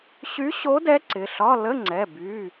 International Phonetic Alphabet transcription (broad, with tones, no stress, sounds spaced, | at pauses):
ɕ y˧˥ ɕ o˧˥ d ɛ˧˥ ǀ ɪ˩˧˩ ɬ ɒ˧˥˧ l ə˧˥˧ ŋ͡ǀ ɛ˩˧˩ b y˩˧˩